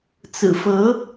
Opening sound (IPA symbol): t͡s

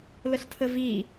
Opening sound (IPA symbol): l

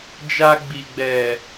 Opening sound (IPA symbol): d͡ʒ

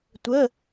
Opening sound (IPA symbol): tʷ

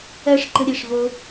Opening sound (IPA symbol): ɜ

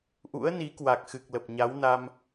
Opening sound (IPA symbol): ʔ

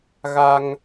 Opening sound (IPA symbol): ɣ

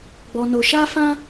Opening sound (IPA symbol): ɡ͡b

